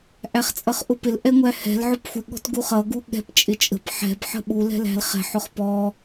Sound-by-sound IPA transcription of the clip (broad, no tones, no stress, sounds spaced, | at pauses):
ʔ æ χ t͡sʼ ʌ χ ʔ ʊ p ɪ l ʔ ɛ ŋʷ æ h ɛ̤ l ʕ ʊ p xʷ ɪ ɠ ɔ̤ t ɡ u χ ʌ ɡ u ɠ ɛ̤ p t͡ʃʼ ɪ t͡ʃʼ ə̤ p ħ ɛ̤ b ħ ə̤ ɓ u l ɛ̤ l æ̤ l χ ɛ̤ ħ ʊ χ p ɔ